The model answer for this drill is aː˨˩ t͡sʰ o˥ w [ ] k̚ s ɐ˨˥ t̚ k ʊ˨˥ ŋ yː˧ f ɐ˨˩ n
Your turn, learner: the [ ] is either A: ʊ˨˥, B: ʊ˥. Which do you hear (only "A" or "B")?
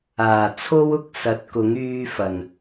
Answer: B